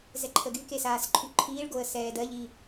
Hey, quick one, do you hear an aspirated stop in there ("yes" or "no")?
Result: yes